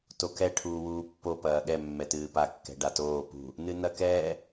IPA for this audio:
t o k ɛ ʈʰ uː w uː pː o p ɐː ɠ ɛ mː ɛ t ɨː p a kː ɛ̤ ɖ a t oː p ṳ | n ɨ n ɐ k ɛː

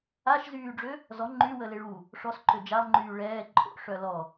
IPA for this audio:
a ʃ z yː ɖ͡ʐ ø | z ɔ ŋ͡ǃ y w ə l e ɭ u | ʂ ɔ s ǃ ø d͡ʒ a lˠ ŋ͡ǃ yː ɭ ɛː ǃʼ o̰ ʂ œ l ɔ

